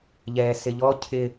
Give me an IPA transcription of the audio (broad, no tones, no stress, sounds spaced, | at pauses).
ʎ ɛː s ɪ ʎ ɔ cʰ ɪ